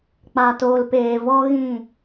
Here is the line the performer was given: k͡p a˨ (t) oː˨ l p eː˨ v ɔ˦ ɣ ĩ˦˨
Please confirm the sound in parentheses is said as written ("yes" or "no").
yes